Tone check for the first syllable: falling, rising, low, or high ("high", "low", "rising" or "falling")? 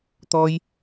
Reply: high